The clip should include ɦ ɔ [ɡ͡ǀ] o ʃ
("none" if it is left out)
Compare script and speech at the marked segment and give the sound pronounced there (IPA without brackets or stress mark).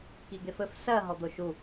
d̪